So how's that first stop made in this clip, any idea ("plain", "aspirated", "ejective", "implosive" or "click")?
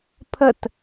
aspirated